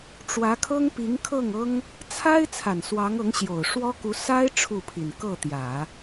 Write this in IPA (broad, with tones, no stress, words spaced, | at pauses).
ʈ͡ʂwä˧˥kʰɤ˥ŋ pi˧˥ŋkʰɤ˥˩ŋɤ˥ŋ | t͡sʰa˥ɪ̯ t͡sʰa˨˩nswɑ˧˥ŋɤ˧˥ŋ ɕjo˨˩ʊ̯ʂwɔ˥ku˧˥ sa˥ɪ̯ ʈ͡ʂʰu˥˩pʰi˨˩n kɤ˥˩t̪jä˨˩˦